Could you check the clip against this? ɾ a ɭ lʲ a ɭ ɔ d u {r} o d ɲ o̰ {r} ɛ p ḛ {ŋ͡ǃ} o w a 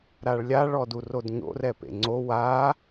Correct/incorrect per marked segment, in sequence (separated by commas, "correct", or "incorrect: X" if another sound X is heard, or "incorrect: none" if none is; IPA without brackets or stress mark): correct, correct, incorrect: ŋ͡ǀ